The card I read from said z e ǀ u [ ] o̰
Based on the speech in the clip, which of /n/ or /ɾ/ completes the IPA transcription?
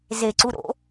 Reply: ɾ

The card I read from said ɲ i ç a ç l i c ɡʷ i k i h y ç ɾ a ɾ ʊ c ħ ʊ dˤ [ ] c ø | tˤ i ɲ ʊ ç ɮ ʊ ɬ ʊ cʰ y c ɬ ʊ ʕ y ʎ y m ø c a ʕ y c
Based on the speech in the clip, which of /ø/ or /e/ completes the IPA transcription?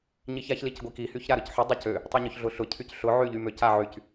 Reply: ø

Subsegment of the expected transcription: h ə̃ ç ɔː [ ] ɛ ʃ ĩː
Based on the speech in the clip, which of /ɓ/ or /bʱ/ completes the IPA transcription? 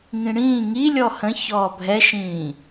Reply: bʱ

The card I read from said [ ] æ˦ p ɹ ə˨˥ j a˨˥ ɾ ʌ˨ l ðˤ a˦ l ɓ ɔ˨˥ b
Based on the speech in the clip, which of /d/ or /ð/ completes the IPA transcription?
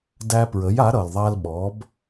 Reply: d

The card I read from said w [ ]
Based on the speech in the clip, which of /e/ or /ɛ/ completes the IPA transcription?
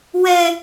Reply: ɛ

